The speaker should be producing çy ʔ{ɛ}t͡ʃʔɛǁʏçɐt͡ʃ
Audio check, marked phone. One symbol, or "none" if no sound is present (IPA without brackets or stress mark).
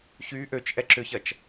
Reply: ø